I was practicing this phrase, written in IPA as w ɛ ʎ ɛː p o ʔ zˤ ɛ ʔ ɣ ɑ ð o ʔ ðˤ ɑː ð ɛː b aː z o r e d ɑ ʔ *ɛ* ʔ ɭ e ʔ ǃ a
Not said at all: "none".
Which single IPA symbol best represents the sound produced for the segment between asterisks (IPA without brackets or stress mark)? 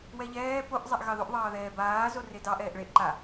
ɛː